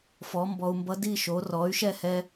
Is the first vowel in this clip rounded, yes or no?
yes